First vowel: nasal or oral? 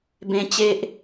nasal